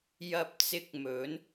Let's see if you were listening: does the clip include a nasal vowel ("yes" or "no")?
no